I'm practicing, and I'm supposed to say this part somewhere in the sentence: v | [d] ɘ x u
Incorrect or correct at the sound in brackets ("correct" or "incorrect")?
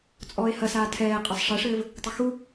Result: incorrect